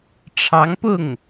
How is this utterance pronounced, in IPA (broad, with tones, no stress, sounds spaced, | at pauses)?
ʈ͡ʂʰ ɑ˧˥ ŋ p ʊ˥˩ ŋ